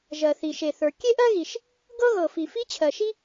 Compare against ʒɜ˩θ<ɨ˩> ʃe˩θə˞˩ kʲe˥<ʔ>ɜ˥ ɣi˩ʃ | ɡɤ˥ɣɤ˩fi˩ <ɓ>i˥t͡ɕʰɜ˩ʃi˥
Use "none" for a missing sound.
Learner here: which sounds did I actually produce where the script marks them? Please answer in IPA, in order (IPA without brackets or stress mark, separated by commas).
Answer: i˩, ʔ, f